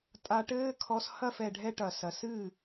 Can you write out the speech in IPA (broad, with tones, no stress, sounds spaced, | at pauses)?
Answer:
tʼ a˧ ʈ ɘː˦ kʰ ɔ˧ s h ɐ˦˨ f ɛ˨ ɖʱ ɛ˧ ʈ ɐ˨ s ɐ˨ s ɨ˦˨